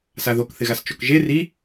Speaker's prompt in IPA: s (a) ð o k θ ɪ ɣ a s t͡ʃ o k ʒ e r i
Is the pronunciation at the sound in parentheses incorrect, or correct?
correct